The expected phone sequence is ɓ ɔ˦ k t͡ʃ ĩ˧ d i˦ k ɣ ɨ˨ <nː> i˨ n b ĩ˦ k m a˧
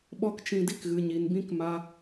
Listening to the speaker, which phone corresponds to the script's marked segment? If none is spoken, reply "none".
ɲ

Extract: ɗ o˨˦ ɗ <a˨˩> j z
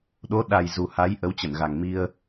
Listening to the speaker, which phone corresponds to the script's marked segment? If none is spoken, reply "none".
a˨˩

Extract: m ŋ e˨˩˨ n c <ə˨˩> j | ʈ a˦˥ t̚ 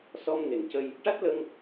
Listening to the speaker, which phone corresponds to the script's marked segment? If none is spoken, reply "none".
ə˧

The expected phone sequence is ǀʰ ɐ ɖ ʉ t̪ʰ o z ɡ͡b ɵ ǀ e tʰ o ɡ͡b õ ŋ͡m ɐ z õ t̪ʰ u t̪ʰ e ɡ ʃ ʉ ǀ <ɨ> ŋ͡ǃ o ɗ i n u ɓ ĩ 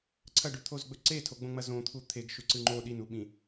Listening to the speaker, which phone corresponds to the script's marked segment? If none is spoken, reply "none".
ɨ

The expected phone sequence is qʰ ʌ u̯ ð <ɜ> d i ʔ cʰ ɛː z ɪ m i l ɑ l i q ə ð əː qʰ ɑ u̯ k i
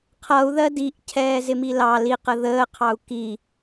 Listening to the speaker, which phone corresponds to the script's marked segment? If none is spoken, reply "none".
ɜ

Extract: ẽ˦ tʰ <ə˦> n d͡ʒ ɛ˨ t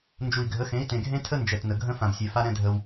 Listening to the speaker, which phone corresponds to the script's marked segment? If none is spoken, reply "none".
ə˦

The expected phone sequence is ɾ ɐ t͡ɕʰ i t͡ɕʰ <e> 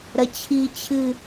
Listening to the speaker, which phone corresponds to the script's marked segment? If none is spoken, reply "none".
ɨ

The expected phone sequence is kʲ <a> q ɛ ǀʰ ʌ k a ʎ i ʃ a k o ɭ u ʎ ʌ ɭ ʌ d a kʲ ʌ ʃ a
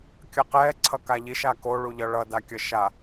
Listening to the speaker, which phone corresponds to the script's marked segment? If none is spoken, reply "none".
ʌ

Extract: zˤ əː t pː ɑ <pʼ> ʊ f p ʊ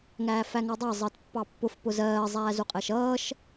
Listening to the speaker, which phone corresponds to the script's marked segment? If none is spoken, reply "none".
pː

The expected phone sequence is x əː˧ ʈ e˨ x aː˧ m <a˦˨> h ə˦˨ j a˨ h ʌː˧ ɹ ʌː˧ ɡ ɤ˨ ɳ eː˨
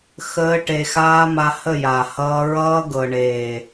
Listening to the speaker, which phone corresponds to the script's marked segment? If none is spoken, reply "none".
a˧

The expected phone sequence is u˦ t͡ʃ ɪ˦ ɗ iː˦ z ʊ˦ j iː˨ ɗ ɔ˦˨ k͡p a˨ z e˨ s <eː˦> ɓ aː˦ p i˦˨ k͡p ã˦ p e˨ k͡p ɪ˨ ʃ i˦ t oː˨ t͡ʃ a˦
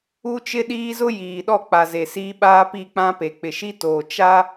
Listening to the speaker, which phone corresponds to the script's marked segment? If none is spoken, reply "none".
iː˦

